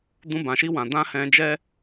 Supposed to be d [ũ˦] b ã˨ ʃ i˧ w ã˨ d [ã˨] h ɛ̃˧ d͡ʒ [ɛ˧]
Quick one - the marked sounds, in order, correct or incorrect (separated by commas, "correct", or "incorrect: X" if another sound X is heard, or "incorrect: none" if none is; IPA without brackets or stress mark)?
incorrect: ũ˧, incorrect: ã˧, incorrect: ɛ˦